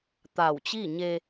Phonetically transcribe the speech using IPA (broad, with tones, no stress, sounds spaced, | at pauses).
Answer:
t̪ a˧˩ w t͡ɕ i˥˨ ɲ e˧